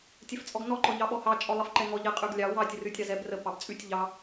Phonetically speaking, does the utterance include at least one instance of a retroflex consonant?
no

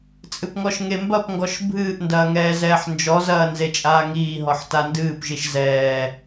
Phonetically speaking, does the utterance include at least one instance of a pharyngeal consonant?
yes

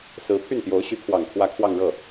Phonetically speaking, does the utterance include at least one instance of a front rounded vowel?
yes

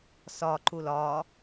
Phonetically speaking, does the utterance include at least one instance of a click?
yes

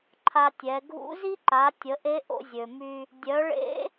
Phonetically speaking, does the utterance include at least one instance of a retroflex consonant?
yes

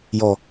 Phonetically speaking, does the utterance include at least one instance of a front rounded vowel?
no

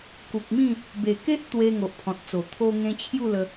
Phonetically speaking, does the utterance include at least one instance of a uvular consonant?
no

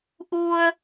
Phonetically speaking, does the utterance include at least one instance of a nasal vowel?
no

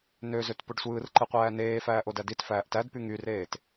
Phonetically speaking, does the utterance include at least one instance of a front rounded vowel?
yes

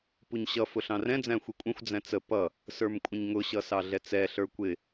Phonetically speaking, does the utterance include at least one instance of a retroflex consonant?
no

